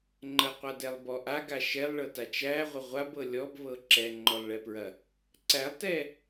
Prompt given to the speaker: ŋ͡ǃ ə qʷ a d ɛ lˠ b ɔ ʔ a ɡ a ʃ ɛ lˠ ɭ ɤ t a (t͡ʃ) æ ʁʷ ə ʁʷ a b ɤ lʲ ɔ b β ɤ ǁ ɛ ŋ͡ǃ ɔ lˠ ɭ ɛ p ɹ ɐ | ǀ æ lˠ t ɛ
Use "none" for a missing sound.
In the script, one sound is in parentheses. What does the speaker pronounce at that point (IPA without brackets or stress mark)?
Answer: t͡ʃ